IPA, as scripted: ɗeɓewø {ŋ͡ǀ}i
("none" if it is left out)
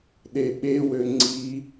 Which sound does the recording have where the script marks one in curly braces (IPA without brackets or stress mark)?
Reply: ŋ͡ǀ